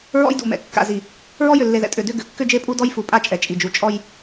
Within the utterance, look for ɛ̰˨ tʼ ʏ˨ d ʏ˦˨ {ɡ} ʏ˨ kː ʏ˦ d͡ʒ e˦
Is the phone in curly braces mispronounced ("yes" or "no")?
no